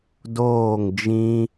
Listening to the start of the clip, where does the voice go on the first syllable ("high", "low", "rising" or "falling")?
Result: falling